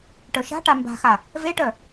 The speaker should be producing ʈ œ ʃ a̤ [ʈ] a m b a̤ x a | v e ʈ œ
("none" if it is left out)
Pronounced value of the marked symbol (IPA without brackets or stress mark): ʈ